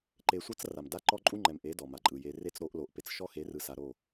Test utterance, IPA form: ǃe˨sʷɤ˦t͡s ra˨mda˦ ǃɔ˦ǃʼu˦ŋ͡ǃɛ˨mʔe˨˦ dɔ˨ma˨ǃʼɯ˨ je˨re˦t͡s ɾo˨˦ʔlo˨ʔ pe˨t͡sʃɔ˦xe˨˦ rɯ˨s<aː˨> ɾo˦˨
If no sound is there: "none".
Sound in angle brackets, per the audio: a˨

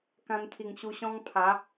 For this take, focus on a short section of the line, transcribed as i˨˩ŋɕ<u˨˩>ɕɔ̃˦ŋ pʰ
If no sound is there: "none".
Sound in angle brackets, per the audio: u˧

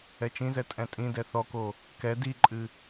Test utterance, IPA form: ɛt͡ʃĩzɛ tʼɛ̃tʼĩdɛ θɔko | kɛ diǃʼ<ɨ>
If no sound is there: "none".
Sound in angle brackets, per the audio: ɨ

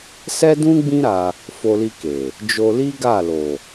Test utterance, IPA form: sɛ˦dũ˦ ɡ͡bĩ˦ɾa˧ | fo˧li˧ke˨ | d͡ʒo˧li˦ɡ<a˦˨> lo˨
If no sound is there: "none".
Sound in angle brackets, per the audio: a˦˨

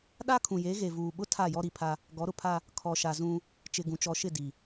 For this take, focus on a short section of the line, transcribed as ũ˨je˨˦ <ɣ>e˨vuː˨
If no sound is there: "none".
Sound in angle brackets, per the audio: ɣ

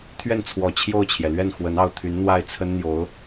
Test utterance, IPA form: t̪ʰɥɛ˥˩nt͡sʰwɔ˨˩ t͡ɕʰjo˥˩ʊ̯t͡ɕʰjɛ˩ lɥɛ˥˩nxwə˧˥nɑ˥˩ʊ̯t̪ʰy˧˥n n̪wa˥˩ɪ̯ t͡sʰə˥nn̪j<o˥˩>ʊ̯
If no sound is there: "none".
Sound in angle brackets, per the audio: o˧˥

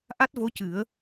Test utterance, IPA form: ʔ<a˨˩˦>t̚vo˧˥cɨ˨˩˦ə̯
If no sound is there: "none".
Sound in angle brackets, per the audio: a˦˥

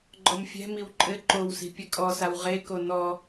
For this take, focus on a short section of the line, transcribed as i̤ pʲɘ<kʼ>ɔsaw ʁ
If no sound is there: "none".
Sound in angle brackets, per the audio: kʼ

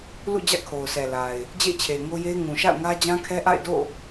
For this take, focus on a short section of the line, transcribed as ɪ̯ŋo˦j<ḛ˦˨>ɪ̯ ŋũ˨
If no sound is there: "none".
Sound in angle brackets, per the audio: e˦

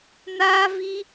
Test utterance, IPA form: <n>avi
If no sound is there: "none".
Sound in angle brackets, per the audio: n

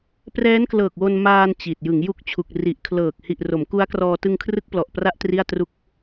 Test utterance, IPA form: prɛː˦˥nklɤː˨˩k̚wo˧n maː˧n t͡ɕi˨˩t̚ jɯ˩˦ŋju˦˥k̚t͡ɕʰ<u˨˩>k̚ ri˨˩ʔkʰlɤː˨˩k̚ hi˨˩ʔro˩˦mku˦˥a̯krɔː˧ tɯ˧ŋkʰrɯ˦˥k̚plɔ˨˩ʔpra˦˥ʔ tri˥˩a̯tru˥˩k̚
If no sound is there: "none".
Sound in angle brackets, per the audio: u˨˩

